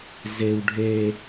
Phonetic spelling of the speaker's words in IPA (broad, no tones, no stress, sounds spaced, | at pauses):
z e w ɖʱ e